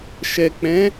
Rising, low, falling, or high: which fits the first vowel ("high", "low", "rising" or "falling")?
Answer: low